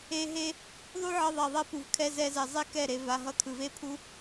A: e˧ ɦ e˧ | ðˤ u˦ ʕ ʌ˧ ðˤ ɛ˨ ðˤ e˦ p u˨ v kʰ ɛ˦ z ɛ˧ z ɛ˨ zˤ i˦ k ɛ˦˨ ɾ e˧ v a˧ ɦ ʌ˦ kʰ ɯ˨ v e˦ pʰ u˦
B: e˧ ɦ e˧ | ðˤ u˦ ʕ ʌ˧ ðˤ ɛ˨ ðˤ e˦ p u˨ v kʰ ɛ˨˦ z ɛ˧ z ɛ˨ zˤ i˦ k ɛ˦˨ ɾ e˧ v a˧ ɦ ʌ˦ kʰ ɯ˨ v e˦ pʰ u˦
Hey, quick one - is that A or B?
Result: A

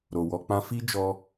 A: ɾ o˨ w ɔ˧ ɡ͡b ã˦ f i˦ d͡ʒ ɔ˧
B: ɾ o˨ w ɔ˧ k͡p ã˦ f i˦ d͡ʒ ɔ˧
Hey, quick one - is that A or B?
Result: B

